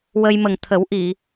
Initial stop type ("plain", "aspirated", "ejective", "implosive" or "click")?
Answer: aspirated